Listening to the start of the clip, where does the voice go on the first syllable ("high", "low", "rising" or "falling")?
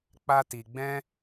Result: high